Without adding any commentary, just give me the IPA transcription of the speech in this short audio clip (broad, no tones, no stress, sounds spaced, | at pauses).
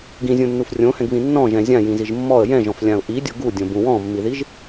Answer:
ɡ ĩ zʲ ũ nː u f rʲ õ h ɛ̃ ɡ β ĩ nː ɔ̃ ʒ ɛ̃ zʲ ã j ĩ z i ʒ mː ɔ ə̯ j ɛ̃ ʒ ɔ̃ f lʲ ã ʊ̯ ʔ i dʲ o ɡ u dʲ õ b ũ w ɔ̃ mː i ð i ʒ